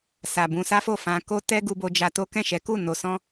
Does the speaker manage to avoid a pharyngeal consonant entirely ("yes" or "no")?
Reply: yes